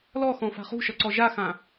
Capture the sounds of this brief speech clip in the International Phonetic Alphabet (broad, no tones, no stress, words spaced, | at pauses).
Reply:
lɔxɔ̃ fa̤χṳʃʌ ǀɔʒaxã